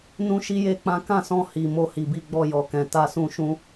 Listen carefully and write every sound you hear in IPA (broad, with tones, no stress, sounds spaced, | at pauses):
n ũ˦ ʃ i˦ j e˦ k͡p ã˦ k ã˦˨ s ɔ̃˧ h i˨ m o˧ h i˨ b i˧ ɡ͡b ɔ˧ j ɔ˨ k ɛ̃˨ t a˧ s ũ˧ ʃ ũ˧